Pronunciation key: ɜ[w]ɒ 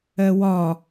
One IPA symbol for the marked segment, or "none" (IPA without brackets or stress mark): w